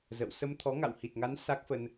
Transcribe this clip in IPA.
zə̰˧˨w sə˧mt̪ʰɔ˨˦ ŋa̰˧˨whi˨˩t̚ŋa˨˦n sa˦˥k̚fə˧n

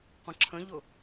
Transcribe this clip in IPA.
qʷə̃ǁʰə̃ʎʊ

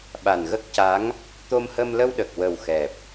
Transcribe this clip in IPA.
ɓa˨˩nɣə˦˥k̚ca˧˥ŋ | t̪o˧mhə˧mlə˧wɗə˨˩k̚ wə˨˩wxɛ˨˩p̚

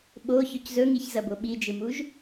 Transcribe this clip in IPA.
ɓoçɵc zɵŋiçzɐbo ɓid͡ʒɨmuʒ

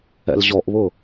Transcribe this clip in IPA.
ɛ̰lʑɔʔβʊ

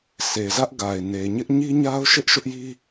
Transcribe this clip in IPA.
sʰe˨zä˦ʔɡa˨ɪ̯ ne˨ɲɪ˦ʔ ɲi˦ɲa˦ʊ̯ʃɪ˦ʔ ʃʊ˦ʔji˦

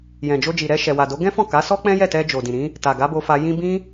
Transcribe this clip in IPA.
jɛ̃˨d͡ʒo˧d͡ʒi˨ɾɛ˧ ʃɛ˨wa˨do˨˦ ɡɛ̃˦fɔ̃˦˨ka˨˦sɔ˦ k͡pɛ̃˦jɛ˦˨tɛ˧ d͡ʒo˨dĩ˨ɾĩ˨˦ | ta˨ɡa˨˦bo˧fa˧ jĩ˦ bĩ˦

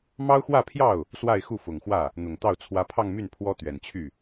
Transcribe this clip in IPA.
mɑ˥ʊ̯xwä˥˧pʰjɑ˥˩ʊ̯ | swa˥˧ɪ̯xu˥˩fʊ˨˩ŋxwä˥˩ | n̪ʊ˨˩ŋt̪ɑ˥˩ʊ̯ t͡sʰwä˧˥pʰɑ˥˧ŋmy˥˩n pʰwɔ˥t̪ɥɛ˨˩nt͡ɕʰy˥˩

